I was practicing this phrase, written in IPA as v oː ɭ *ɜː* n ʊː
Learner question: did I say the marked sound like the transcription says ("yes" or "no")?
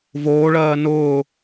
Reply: yes